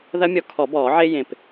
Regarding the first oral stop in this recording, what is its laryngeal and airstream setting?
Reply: aspirated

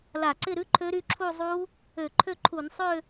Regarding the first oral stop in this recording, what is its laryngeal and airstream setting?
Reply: click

